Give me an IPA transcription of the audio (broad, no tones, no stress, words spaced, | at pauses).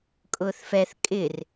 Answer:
kʼʊːθfɛθ kʼɪr